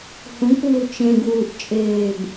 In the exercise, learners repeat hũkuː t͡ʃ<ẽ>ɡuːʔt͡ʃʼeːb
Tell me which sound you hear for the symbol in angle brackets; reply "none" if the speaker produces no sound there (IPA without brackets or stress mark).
ẽ